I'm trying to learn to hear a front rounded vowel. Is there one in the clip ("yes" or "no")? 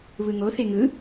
no